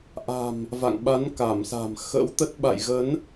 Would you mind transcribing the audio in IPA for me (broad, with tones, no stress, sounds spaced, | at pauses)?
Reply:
ʔ a̤˨˩ m | v a̰˧˨ ŋ ɓ a˨˦ n k a˧˩ m s a̤˨˩ m x ə̰˧˥ w t̪ ə˦˥ t̚ ɓ a̰˧˨ j ɣ ə˨˦ n